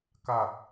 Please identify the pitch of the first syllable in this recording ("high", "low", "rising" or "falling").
low